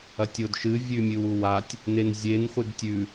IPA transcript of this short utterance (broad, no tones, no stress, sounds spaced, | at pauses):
ɐ tʲ o d ʃ ɨ vʲ ʉ mʲ ɨ w u w a tʲ | n e n zʲ e n χʷ ɨ d tʲ ʉ